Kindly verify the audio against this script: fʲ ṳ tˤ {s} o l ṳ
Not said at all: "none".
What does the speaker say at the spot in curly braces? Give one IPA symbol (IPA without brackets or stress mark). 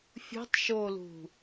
ʃ